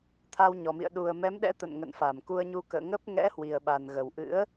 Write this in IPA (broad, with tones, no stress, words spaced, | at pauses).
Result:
t̪ʰa˧wɲɔ˨˩mḭ˧˨ə̯ ɗu˨˩ə̯mɛ˨˦mɗɛ̰˧˥ t̪ə̰˧˨nŋə̰˧˨n fa˧˩mku˧ə̯ɲu˧ kə̰ː˧˨ŋə˦˥p̚ ŋɛ̰˧˥ hwi˨˩ə̯ɓa˨˩nɣə˨˩w ʔɨ̰˧˥ə̯